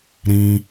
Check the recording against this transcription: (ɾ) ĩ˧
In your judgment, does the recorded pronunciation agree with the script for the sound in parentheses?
yes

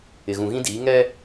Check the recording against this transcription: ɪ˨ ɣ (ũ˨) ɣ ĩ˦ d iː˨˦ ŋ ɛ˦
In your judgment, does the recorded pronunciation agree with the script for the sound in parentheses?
yes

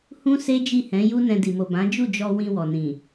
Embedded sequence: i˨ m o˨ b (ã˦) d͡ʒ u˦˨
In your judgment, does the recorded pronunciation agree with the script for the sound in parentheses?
no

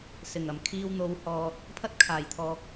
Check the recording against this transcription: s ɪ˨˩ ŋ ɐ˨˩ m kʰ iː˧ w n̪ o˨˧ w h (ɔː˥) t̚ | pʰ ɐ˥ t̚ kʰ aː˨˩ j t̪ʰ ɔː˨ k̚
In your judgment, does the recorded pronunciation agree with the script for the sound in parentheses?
no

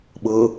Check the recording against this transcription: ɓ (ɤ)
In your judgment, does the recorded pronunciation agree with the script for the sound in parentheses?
yes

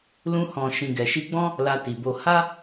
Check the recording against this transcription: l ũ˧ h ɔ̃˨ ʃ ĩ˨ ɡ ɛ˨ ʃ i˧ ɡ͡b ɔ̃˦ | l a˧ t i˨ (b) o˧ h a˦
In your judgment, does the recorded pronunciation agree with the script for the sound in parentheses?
yes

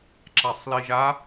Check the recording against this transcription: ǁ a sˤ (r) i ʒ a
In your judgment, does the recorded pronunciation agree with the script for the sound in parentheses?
no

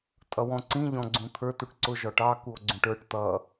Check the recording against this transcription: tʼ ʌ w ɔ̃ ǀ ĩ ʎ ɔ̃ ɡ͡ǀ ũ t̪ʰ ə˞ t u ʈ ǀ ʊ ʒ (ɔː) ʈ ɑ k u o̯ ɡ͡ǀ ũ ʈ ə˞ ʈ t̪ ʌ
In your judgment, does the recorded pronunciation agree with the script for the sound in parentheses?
no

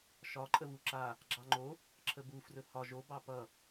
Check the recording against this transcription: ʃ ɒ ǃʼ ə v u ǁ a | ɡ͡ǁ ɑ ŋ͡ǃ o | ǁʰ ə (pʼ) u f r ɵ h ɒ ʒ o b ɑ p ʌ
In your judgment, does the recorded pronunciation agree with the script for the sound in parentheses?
no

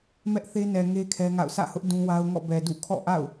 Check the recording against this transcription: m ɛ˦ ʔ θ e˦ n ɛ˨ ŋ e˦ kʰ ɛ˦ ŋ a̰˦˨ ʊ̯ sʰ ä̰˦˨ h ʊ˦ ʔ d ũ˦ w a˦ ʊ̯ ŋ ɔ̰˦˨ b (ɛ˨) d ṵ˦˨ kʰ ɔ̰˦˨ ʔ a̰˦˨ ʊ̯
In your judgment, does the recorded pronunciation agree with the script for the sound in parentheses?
yes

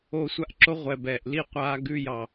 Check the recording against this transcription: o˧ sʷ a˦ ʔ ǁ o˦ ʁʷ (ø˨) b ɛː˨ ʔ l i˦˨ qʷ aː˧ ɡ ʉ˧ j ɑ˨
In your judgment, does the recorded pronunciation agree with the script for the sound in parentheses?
no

